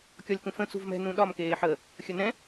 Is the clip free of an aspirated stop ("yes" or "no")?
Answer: yes